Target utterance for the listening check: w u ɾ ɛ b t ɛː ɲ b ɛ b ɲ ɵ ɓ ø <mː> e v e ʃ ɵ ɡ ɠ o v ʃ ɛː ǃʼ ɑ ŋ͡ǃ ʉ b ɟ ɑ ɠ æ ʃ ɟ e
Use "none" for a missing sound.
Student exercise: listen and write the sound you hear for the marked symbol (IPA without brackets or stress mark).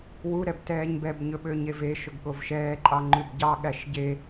ɲ